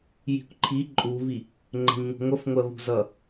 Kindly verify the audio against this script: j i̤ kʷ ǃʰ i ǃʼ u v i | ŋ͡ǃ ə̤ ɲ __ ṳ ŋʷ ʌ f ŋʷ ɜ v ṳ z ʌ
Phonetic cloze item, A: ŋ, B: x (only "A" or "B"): A